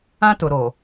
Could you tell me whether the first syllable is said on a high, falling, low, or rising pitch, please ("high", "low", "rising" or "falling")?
high